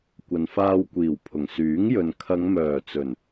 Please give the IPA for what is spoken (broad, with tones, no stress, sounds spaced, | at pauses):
kʷ ɐ˨ n f aː˧ w kʷ iː˨˩ w pʰ ʊ˨˩ ŋ s yː˨˥ ŋ j ɵ˨ n kʰ ɐ˨˧ ŋ m œː˨˩ t͡s ɵ˨˩ n